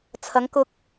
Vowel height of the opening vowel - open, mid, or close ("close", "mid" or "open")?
open